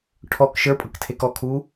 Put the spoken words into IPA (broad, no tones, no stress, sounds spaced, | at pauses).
ʈʰ ɔ k ʃ ə˞ pʼ ɤ k tʰ e k ɔ kʰ uː